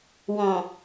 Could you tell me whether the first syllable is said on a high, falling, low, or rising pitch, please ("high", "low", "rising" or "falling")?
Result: low